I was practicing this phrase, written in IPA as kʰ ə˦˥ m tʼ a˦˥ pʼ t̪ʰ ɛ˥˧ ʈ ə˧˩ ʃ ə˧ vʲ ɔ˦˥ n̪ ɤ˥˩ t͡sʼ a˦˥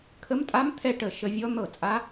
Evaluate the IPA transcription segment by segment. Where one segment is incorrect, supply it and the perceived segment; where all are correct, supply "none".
pʼ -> m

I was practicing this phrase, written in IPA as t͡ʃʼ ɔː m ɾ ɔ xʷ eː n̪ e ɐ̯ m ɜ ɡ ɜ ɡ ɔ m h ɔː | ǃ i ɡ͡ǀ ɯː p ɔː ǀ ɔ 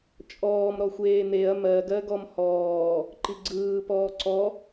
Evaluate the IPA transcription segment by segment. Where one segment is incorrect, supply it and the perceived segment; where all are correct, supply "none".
none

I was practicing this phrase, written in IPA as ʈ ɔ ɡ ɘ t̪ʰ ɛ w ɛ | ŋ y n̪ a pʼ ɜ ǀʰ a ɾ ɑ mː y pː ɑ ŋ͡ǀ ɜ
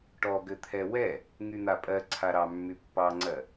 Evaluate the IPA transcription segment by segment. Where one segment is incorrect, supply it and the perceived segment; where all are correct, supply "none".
none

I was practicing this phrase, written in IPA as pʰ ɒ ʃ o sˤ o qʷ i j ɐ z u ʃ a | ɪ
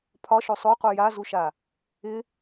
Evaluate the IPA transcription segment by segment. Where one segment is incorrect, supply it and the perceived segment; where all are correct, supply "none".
ɐ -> a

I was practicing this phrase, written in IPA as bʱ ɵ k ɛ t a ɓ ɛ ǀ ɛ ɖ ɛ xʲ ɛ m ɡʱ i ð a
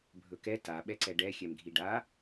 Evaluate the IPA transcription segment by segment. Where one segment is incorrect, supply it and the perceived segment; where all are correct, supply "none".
ð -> ɖ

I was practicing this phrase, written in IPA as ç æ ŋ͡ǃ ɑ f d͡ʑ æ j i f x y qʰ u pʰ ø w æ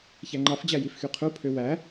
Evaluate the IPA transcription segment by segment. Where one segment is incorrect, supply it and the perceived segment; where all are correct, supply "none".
none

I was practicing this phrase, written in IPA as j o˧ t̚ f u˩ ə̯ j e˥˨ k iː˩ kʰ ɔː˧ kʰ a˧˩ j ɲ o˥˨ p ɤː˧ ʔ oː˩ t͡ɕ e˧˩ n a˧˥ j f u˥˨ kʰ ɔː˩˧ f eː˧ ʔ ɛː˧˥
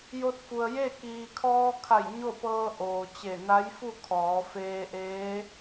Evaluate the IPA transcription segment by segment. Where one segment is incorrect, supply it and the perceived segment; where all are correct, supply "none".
ɛː˧˥ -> eː˧˥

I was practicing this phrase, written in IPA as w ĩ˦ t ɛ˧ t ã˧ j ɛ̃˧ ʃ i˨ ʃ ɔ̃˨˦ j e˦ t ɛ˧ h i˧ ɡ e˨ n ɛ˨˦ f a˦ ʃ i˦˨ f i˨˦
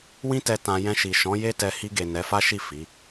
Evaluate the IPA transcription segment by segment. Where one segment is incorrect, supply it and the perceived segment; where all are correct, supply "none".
none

